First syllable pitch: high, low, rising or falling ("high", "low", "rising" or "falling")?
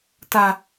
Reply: low